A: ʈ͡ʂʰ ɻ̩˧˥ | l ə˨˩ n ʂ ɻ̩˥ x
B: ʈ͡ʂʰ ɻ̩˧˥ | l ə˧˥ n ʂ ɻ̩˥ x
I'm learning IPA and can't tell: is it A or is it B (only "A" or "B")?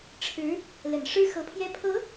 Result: A